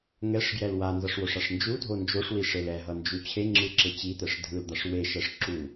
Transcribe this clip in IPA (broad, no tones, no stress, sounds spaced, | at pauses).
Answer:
ŋ ɛ ʂ ɡ j ɛ l w a n z ʌ ʂ w o ʂ a ʂ n d͡ʒ u dʱ o n d͡ʒ o ʂ w i ʂ e l ɛ ɦ ʌ n d͡ʒ u t͡ɕʰ e ŋ͡ǁ ɯ ǁ e t͡ɕ i t̪ ɛ ʂ dʱ ɯ l d̪ a ʂ w e ʃ ɛ ʂ ǁ u